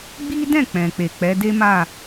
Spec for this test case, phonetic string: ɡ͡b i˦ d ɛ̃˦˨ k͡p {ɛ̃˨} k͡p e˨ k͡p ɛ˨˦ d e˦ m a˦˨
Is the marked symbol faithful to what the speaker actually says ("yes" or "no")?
yes